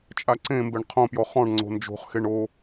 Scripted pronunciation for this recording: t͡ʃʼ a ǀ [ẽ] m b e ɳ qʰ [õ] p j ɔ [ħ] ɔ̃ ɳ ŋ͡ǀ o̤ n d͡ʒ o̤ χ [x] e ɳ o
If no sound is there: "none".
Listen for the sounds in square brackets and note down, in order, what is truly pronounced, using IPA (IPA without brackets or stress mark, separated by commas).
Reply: ẽ, õ, χ, x